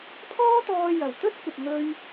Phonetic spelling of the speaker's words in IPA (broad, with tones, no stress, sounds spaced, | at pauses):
pʰ ɔː˥ t̪ ɔː˧ j ɐ˨˩ w t̪ ɵ˥ t̚ kʷ ɐ˨ p̚ ŋ ɵ˧ ɥ